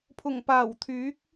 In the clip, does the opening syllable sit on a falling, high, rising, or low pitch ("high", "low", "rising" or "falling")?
low